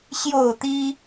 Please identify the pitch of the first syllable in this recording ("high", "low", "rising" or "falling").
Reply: falling